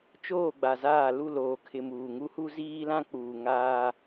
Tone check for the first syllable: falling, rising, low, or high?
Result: falling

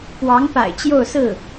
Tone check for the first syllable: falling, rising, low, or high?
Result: rising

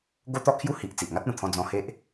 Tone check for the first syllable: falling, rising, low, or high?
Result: high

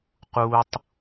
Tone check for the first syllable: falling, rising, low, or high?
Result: low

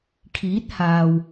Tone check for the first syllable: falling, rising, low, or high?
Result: rising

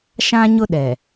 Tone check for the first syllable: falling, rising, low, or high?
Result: high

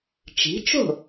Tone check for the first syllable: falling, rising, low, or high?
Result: rising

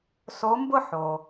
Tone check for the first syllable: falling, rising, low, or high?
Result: rising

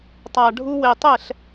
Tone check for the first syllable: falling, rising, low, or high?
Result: low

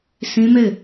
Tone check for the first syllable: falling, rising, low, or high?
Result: high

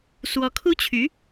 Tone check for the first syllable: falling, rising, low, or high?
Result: rising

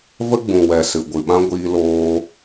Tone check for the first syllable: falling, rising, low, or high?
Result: high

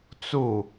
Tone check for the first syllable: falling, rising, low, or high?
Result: falling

